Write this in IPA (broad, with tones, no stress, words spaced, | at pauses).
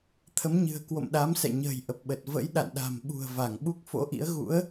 t̪ʰə˨˦mɲɨ̤˨˩ə̯ kwo̰˧˨mɗa˨˦msɛ̰˧˨ɲə̤ː˨˩j ʔə˨˩p̚ɓə˨˩t̚ və̰˧˥jɗa̰˧˨nɗa̤˨˩m ɓṳ˨˩ə̯ va˧˩ŋɓu˦˥k̚ fo̰˧˥ʔḭ˧˥ə̯ ɣṵ˧˥ə̯